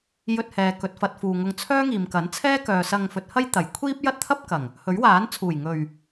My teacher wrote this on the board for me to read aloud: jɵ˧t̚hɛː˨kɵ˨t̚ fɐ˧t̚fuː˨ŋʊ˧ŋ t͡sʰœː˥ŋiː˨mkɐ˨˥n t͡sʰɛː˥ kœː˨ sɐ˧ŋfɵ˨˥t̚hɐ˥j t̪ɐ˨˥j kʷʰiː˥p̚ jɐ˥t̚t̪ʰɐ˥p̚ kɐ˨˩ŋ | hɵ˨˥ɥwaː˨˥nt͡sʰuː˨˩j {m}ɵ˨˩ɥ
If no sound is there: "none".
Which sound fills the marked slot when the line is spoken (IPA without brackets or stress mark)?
ŋ